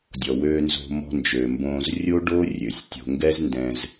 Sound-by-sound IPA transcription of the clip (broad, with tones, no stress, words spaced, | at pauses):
dʲɔ˩wøː˨nzo̤˨ mɔ̤˨nd͡ʒø˩ mbõː˨z rʲo˦ɖo˦ rʲø˩sʲ tʲo̤˨ŋɡɛ˦z ndɛ̃˨z